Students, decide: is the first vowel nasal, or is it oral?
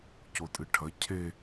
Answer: oral